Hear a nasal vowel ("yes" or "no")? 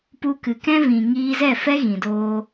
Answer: yes